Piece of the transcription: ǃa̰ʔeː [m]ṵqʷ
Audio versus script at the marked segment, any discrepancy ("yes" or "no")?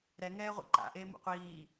no